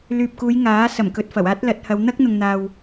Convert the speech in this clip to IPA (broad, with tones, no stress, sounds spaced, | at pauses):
l yː˨ p̚ k uː˨˧ j ŋ aː˨˥ s ɐ˨˩ m k ɵ˨ t̚ f ɐ˨˩ w aː˥ t̚ l ɐ˨˥ t̚ h ɐ˨˧ w n̪ ɐ˥ k̚ n̪ ʊ˨ ŋ n̪ aː˨ w